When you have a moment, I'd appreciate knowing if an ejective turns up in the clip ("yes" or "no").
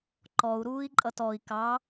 yes